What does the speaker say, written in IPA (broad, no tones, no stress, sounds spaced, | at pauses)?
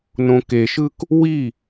n õ k e ʃ ɯ k | w i